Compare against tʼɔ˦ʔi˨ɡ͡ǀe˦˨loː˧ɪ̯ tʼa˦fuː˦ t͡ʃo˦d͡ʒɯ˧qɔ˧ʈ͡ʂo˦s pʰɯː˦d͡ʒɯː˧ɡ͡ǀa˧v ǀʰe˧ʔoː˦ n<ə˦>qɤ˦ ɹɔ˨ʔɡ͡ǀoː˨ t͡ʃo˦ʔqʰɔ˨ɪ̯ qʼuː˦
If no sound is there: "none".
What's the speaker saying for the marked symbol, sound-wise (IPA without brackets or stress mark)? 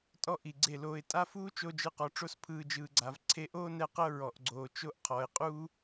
ɛ˦